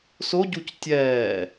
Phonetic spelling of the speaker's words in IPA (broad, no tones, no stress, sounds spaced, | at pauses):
s o ɟ u c tʲ ɛː